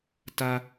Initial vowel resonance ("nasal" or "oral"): oral